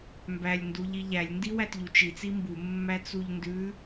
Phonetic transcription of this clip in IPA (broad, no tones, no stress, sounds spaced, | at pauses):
m b æ lʲ n d u ʎ i ʎ æ lʲ n d i w æ t ʎ u t͡ʃ i t͡s i m b u mː æ t͡s u ʎ n d ʉ